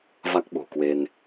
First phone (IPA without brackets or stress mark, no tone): v